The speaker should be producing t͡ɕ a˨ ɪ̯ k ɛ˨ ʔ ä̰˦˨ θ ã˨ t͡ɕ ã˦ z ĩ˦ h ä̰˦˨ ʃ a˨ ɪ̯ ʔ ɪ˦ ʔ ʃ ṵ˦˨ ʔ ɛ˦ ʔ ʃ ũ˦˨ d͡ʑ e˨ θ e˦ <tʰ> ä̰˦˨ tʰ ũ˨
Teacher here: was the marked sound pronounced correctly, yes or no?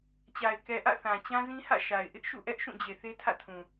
yes